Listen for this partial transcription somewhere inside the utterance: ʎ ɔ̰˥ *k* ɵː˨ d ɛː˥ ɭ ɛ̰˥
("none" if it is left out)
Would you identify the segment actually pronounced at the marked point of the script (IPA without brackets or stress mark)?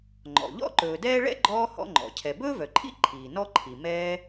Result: ǃ